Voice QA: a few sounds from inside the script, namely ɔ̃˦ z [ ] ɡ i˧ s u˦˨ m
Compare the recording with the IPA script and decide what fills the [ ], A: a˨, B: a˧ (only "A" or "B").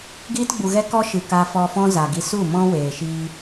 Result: A